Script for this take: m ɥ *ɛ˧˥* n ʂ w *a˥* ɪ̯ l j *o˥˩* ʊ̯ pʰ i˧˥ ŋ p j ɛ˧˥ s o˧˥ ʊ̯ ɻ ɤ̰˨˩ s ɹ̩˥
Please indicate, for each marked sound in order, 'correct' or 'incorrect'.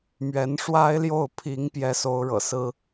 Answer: correct, correct, correct

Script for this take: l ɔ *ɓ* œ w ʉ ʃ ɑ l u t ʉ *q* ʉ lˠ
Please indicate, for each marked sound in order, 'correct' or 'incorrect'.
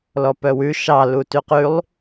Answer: incorrect, correct

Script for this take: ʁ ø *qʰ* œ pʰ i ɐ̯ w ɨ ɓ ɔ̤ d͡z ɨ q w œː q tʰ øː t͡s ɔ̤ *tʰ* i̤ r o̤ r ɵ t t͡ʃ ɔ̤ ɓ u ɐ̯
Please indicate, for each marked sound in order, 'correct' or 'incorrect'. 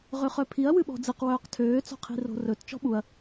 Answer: incorrect, incorrect

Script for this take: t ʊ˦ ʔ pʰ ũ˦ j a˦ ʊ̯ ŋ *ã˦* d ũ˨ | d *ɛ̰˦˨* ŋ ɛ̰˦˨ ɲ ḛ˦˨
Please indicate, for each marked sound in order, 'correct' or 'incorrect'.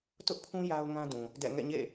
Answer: correct, correct

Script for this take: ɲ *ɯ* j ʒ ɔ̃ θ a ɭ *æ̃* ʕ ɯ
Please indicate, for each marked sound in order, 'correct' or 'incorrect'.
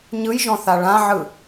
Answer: correct, incorrect

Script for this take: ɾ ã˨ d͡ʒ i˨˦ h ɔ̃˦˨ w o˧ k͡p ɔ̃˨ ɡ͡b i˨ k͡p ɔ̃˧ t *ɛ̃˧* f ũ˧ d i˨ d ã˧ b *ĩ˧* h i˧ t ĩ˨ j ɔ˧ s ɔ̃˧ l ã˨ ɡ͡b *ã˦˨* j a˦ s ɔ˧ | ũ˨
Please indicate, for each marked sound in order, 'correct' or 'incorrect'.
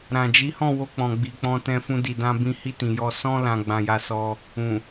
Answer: correct, correct, incorrect

